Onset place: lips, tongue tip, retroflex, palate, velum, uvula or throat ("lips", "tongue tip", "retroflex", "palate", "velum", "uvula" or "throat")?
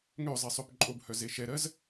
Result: velum